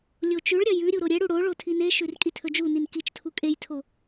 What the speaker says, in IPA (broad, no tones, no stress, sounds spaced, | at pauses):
lʲ o t͡ʃ ʉ ɭ ɾʲ ɐ j ʉ ɾʲ u ɾ o ɾʲ e ɽ u ɽ o ɭ o tʰ i n e ʃ ʉ r kʼ i tʰ ɵ d͡ʒ u n i n k i t͡ʃ tʰ u kʼ e j tʰ o